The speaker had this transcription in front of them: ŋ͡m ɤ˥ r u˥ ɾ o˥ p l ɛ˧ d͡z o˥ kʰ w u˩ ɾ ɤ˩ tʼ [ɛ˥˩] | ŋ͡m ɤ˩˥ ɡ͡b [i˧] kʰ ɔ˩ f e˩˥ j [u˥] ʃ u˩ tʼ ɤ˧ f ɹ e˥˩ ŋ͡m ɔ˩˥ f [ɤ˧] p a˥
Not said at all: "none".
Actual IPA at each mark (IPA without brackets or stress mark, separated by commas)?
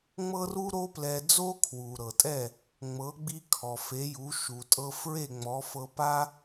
ɛ˥˩, i˧, u˩˥, ɤ˧